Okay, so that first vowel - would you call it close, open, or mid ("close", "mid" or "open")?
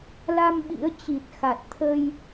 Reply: open